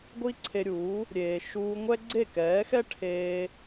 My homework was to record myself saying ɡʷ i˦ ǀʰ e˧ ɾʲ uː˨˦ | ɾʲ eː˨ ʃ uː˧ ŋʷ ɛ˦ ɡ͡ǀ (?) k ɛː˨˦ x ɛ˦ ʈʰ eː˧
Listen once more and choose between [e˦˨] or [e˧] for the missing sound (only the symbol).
e˦˨